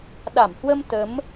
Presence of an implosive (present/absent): present